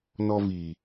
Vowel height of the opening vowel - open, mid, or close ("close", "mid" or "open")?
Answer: mid